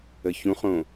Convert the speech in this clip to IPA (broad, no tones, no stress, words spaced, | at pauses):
əçũχõ